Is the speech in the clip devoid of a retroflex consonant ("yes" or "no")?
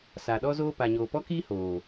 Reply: yes